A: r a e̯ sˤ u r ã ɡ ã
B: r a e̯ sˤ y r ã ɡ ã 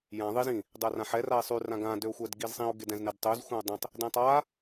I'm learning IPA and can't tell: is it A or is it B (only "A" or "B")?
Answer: B